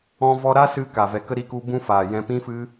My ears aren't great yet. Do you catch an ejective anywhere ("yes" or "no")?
no